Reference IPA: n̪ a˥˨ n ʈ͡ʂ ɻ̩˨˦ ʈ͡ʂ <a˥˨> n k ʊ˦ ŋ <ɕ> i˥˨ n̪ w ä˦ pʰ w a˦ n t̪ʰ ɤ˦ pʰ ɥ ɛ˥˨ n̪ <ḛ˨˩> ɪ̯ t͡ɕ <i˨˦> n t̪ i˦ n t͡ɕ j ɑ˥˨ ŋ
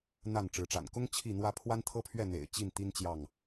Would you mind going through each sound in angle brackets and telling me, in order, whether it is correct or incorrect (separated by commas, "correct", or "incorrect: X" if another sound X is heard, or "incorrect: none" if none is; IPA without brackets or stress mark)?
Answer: incorrect: a̰˨˩, incorrect: t͡ɕʰ, correct, incorrect: i˥˨